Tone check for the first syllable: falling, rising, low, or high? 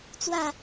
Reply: falling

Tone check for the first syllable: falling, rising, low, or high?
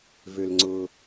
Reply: low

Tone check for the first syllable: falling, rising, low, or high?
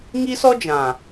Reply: high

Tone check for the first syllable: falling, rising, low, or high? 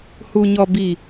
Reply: low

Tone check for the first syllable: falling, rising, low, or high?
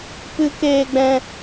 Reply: high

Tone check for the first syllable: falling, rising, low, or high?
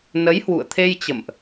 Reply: rising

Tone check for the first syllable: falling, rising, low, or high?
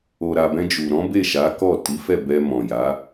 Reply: low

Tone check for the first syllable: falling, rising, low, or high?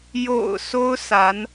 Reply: low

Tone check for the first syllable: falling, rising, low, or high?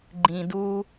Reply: low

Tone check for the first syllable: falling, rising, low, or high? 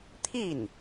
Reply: falling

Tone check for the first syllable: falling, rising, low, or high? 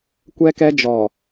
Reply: high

